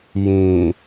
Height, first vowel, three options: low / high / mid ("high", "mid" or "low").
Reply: high